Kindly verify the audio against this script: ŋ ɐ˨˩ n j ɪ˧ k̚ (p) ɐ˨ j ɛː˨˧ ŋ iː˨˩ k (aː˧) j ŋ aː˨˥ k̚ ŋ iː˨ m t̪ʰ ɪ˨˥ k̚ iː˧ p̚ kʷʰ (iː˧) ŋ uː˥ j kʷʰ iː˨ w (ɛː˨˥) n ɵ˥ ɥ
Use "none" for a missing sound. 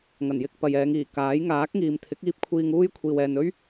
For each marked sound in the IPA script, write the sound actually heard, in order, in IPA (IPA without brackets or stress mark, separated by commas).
p, aː˨˥, iː˧, ɛː˨